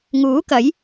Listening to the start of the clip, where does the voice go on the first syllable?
rising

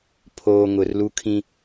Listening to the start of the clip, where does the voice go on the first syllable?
low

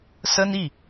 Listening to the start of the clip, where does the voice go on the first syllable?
high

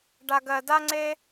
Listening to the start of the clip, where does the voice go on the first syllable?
low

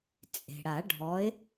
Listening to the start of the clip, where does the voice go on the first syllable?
low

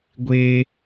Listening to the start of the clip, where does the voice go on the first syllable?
high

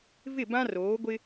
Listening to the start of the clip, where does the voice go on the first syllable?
falling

